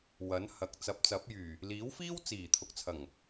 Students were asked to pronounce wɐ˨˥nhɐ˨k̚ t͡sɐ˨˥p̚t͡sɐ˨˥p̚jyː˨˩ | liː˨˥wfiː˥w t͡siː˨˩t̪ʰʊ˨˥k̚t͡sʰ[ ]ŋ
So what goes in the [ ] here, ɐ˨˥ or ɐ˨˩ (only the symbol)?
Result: ɐ˨˩